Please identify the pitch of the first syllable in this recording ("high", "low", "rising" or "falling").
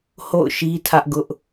falling